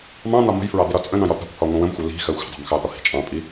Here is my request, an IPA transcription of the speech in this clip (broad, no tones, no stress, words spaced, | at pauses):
mɑ̃ n̪ɒmə̤jfɹɑ d̪iɾɒt͡sʼə̃nɑ̃j ɒt̪ɑ̤kʷhɒ ŋʷə̃wə̃mxʷɜ li̤ xɜxʷə̤dˤɑ̤m xɑt̪ɒ hi̤t͡ʃʼɑ̃pʼi